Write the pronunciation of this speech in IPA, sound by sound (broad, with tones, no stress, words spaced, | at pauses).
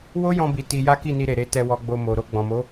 wo˦jɔ̃˧bi˨ ti˧ ja˦ki˦˨ni˧ɾe˨ ɾe˨˦tɛ˧wɔ˧ɡ͡bo˧ mo˨ ɾo˧ɡ͡bɔ̃˨mo˨˦